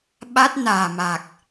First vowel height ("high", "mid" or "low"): low